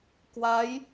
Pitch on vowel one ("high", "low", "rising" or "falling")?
rising